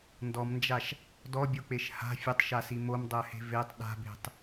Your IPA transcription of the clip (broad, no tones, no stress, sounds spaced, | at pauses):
n d ɔ m n d͡ʒ a ʃ | d ɔ bʲ o k͡p e ʃ h a̤ fʲ ə tˤ ʃ a s i m o m dˤ ɜ h e̤ v e tˤ ɗ a̤ b e̤ tˤ